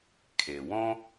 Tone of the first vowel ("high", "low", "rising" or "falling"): low